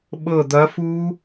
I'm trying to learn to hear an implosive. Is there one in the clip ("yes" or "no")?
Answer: yes